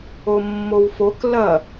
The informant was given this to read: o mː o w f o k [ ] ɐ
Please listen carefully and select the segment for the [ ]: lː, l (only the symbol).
l